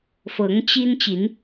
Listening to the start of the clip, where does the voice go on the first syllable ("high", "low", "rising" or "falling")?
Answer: rising